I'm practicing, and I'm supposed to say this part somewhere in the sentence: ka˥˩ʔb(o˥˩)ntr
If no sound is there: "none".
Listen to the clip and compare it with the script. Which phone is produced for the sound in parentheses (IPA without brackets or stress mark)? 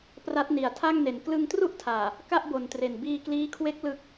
o˨˩